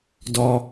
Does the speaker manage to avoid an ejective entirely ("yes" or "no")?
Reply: yes